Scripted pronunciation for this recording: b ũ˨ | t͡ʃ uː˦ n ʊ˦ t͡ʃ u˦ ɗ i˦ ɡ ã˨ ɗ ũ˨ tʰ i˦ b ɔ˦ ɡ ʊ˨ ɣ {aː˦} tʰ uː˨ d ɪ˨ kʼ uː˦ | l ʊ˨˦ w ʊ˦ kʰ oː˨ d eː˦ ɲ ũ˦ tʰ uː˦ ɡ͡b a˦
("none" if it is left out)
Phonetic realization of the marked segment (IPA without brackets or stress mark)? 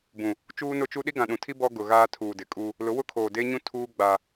aː˦